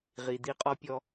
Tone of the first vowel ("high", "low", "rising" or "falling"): low